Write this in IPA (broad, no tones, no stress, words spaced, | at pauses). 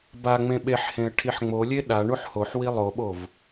baŋ͡mẽ ɓeħhẽə̯ ʈʰiħŋ͡molʲe ɗa ɳuħhoħwi lˠoɓov